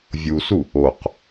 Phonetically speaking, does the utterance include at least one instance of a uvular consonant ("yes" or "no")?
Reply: yes